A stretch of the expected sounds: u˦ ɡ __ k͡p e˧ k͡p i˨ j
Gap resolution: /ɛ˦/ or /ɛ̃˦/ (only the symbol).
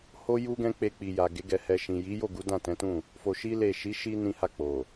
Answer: ɛ̃˦